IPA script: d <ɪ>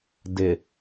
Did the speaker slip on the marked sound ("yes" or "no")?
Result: no